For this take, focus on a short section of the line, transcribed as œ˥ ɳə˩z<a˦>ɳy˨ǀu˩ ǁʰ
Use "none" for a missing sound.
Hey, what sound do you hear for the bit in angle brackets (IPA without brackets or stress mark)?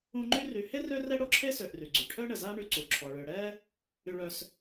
a˦